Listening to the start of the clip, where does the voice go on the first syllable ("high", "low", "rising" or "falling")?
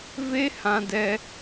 high